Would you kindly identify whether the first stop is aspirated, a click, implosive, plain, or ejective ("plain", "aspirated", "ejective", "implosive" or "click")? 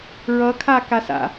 aspirated